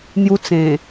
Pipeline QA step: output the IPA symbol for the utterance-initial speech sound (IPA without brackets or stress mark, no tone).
n̪